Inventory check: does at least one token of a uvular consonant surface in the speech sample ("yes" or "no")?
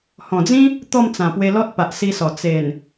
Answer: no